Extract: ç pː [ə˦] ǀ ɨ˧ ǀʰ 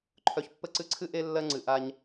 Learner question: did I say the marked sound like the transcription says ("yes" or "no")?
no